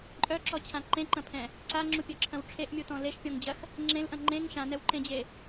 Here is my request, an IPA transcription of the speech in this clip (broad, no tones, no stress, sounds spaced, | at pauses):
ǃʼ œ ǁ ɔ t͡ɕʰ ã ǃ ẽ ǃ ɐ̃ pʰ ɛ̃ | ǀ a ŋ͡ǁ u pʲ œ ǁʰ ɐ̃ w ʈ͡ʂʰ e ʔ mʲ u t ɔ̃ l e ʃ pʲ ɔ̃ ŋ d͡ʑ ɐ x | ŋ͡ǁ ẽ l ʔ ɐ̃ ŋ͡ǃ ẽ ŋ ʃ ã n ɛ w ǃ ẽ d͡ʑ e